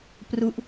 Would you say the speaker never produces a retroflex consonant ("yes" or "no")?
yes